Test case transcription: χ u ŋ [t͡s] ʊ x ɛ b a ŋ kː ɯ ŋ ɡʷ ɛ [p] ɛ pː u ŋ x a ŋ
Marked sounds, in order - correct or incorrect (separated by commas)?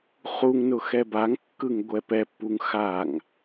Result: incorrect, correct